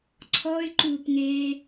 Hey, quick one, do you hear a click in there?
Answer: yes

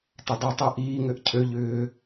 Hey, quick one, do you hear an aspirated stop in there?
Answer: yes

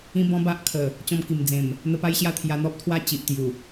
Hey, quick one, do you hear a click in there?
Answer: no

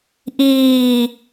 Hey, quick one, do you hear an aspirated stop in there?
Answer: no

